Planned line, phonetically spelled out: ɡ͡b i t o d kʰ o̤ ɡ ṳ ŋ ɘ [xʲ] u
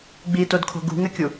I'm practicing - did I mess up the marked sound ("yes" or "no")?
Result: yes